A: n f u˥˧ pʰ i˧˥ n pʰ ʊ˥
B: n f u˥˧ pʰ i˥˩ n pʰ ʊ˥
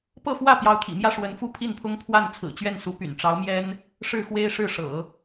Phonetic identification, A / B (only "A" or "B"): B